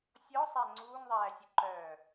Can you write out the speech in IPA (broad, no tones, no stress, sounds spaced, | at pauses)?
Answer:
sʲ ɔ sˤ æ ŋ͡ǀ uː ŋ ðˤ æː sʲ ə ǃ œː